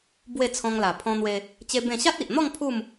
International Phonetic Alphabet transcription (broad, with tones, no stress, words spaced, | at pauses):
bwe˥˧t͡sʰɔ̃˧ŋla˨˩ pʰɔ̃˧n̪we˧ | t͡ɕe˦bẽ˥˧ ɕa˦t̚i˨ʔn̪ɔ˥˧ŋ pʰu˥˧m